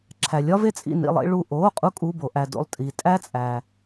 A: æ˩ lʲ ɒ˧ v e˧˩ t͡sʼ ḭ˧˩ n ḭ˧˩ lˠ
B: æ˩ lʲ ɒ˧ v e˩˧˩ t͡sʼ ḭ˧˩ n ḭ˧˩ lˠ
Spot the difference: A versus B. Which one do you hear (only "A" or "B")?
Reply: A